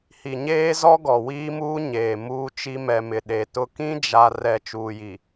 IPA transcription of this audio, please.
h i˨ ɲ eː˦ z ɔ˦ ɡ ɔ˨ w iː˦ m uː˦ ɲ eː˨ m uː˦ t͡ʃ i˦ m ɛ˨ m ɪ˨ ɗ e˨ t ʊ˦ k ĩ˦ d͡ʒ a˨ r ɛ˨ t͡ʃ uː˨ j i˨

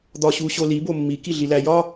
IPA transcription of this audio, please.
d̪ ɒ ɕ u ɕ o l i b o mː i k i ɮ i l æ j ɒ

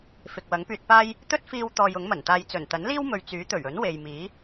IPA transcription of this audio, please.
f ɪ˨ k̚ w ɐ˨˥ ŋ p yː˧ t̚ p aː˥ j | t̪ ɵ˥ t̚ f iː˧ w t̪ ɔː˧ j ʊ˨˥ ŋ m ɐ˨˩ n t̪ aː˧ j t͡s ɵ˨˩ n t̪ ɐ˨˥ n l iː˥ w m ɵ˨ ɥ t͡s yː˨˥ t̪ ɵ˨˩ ɥ ɵ˨˥ n w e˨ j m iː˨˥

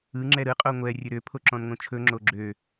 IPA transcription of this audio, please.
ɯ ŋ͡ǁ ɛ ɾ ɯ qʼ o ŋʷ ɛ rʲ ɵ ɾ ø pʰ o ǁ ɔ̃ n ŋ õ t͡ʃʰ ɵ ŋ͡ǁ o ɡ͡ǁ ø

